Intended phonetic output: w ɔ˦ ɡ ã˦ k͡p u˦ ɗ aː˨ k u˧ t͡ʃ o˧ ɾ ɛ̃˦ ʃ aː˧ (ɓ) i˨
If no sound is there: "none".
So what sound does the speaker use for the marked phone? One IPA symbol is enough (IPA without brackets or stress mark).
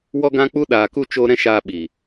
ɓ